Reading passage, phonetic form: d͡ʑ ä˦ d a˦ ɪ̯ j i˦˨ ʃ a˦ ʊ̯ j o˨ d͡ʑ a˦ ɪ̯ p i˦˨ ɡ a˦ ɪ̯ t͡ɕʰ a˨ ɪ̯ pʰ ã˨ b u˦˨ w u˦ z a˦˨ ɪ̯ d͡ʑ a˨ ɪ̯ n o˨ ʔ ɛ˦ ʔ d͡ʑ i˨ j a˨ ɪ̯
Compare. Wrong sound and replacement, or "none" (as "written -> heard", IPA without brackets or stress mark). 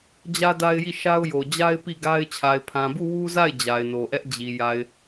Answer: none